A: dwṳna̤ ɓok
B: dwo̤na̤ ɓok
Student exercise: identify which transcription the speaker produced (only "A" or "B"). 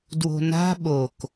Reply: B